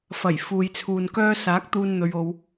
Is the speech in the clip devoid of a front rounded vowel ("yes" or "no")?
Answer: no